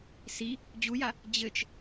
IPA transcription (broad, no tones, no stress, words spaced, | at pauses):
si | d͡ʑuja | d͡ʑɘt͡ʃ